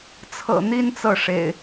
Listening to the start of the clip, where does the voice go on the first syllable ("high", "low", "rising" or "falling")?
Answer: low